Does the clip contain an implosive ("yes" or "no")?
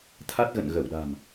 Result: yes